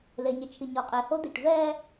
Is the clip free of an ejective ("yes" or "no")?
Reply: no